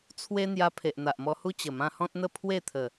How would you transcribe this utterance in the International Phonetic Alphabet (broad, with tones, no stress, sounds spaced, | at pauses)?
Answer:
t͡sʰ w e˦ n̪ j a˧ pʰ e˨ ʔ n̪ a˨ ʔ m ɔ˧ h u˦ t͡ɕ ə˨˩ m ã˧ h ɔ̃˦ t̚ n̪ ə˥˧ pʰ w e˥˧ t̪ʰ ə˨˩